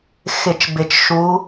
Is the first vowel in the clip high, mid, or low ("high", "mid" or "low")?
high